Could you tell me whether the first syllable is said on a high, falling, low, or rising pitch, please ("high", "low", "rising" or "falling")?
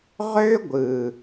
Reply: high